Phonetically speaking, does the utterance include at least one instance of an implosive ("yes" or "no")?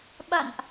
yes